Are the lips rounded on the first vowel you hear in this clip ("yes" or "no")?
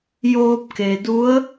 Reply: yes